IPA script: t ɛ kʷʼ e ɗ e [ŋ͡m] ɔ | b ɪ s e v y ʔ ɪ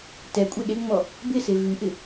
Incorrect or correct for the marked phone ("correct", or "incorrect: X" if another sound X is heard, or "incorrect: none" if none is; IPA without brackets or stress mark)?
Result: correct